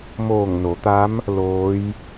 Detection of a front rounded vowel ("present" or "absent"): absent